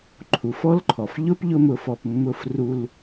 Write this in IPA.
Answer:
ǃʰ u˩ f ɔ˥ l ǃʰ ɔ˩ f ʎ ʊ˥ p ʎ ʊ˥ m ʊ˧ f ɔ˧ p mː ʊ˧ f r u˧ l

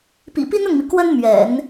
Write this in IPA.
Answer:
p ḭ˨˩ p i˥ n ʊ˥˩ ŋ m i˩ k w ə˥ n m ɥ ɛ̰˨˩˦ n

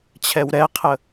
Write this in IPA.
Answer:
t͡ɕʰ ɛ w ɾ ɛ qʰ ə

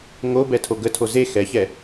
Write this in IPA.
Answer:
ŋ o b ɛ tʰ o ɡ ə tʰ o z e x ɛ ç ɛ

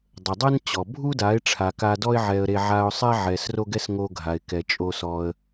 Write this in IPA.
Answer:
dˤ ə˨ dˤ ɛ˦ n t͡ɕ ɔ˨ bʱ u˦ d a˨˦ ɪ̯ ʈ͡ʂʰ a˨ k a˧ d ɔ˦ ɪ̯ ʕ ɛ˧ ə̯ ɾ e˧ ʕ a˧ ʊ̯ sˤ ɛ˦ ʕ ɛ˧ s r o˦ ɡ ɛ˦ s ŋ o˧ ɡʱ a˨ ɪ̯ k ɛ˨ t͡ʃʼ o˧ s ɔ˧ ə̯

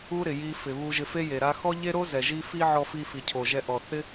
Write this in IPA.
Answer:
u˥ ɾ ɪ˩ j i˧ f ɪ˩ β u˧ ʒ ɪ˧ f e˥ j e˩ ɾ a˧ x ɔ˥ ʎ e˥ ɾ o˥ z ɛ˩ ʒ i˧ f i˥ ʕ ɔ˧ f i˧ f i˩ cʰ o˩ ʒ ɛ˧ ʔ ɔ˩ θ ɪ˥

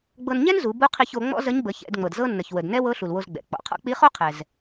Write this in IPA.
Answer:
ɡ͡b ɤ˧ n ɲ ɛ˥ n z u˩˧ b u˧˥ qʰ i˧ ç o˩˧ ŋ͡m ɔ̰˥ z ə˧˥ ɲ b ə˩˧ ç ɛ̰˩˧ d ŋ͡m ɤ˩ d z ɤ˥ nː ə˩ ç w ə˩ d n ɛ˥ w ɤ˧˥ ɬ u˩ l w o˧ z ɡ͡b ɛ̰˩ k͡p ɔ̰˩˧ qʰ ɔ̰˥ k͡p i˧˥ χ o˥ qʰ ɛ˩ z

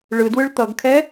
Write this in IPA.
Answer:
ɭ ɯ d w ɯ ɭ t̪ ʌ ɡ kʰ ɛ

